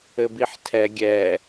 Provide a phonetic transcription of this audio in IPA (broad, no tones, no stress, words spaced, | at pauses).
ɘbiħtʰɛ ɡʲɛ